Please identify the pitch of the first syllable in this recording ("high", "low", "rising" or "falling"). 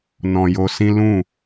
low